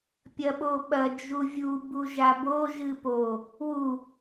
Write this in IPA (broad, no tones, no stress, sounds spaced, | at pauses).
pʲ ɐ ɓ o ɓ ɐ d͡ʒ u vʲ u b u ʒ a b o ʒ ɨ p o | w u